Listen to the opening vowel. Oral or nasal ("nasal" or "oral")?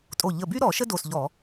oral